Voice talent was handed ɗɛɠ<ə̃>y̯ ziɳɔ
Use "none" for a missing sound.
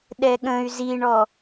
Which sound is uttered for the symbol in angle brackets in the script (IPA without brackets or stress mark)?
ə̃